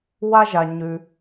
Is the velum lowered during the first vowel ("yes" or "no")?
no